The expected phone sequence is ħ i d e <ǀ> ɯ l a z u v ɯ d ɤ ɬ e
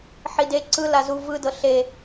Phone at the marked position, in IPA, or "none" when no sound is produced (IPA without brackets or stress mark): ǀ